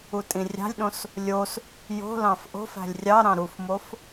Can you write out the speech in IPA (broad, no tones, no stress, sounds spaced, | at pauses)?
u tʼ ĩ rʲ ɑ̤ lʲ ɗ õ s | lʲ o s | j o̤ l ɑ̃ f ʔ o̤ f æ̤ lʲ rʲ ɑ ɾ ɑ̃ ɾ u f m o f